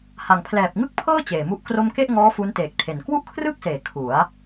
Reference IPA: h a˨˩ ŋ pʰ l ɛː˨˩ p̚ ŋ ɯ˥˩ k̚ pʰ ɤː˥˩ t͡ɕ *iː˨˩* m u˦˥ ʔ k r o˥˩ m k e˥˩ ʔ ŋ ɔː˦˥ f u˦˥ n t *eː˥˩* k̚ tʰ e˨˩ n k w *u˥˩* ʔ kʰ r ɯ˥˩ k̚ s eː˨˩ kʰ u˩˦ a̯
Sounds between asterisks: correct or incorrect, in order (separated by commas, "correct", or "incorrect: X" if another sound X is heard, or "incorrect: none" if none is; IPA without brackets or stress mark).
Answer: incorrect: eː˨˩, incorrect: eː˨˩, correct